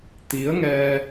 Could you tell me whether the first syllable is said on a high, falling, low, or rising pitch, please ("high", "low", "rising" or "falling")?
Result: rising